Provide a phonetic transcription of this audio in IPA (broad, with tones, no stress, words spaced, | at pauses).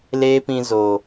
leː˦pĩ˧zoː˨